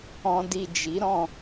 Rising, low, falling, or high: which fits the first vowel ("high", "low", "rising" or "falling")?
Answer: low